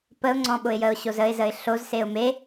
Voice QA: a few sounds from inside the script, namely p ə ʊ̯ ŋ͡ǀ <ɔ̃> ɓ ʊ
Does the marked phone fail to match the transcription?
no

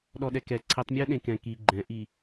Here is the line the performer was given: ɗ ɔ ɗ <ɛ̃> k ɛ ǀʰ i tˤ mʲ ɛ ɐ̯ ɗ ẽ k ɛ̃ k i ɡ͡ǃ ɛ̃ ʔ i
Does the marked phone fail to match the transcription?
yes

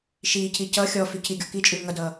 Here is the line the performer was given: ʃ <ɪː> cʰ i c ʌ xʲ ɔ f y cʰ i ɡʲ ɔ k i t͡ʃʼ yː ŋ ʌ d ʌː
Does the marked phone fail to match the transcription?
yes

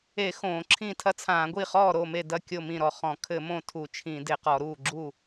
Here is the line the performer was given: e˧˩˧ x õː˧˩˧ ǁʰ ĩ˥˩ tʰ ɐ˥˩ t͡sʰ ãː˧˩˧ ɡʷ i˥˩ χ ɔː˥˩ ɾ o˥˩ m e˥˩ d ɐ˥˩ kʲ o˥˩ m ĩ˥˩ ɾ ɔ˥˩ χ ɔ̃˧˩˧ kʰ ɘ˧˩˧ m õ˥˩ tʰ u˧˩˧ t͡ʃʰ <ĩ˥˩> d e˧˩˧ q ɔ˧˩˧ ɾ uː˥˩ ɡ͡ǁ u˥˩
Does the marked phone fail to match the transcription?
yes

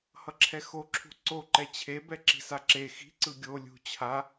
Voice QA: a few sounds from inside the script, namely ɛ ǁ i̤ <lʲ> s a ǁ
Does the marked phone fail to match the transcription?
yes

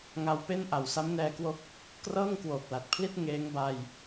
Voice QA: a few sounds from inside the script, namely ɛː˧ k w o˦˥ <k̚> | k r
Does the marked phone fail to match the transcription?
no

